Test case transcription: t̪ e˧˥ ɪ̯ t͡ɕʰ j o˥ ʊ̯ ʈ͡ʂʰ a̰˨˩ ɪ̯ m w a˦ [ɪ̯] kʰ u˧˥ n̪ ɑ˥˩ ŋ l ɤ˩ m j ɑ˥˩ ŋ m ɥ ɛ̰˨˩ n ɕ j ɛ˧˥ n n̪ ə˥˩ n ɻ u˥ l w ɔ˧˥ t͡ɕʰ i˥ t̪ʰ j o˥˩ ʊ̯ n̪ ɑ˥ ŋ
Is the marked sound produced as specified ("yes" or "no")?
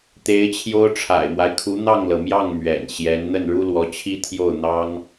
yes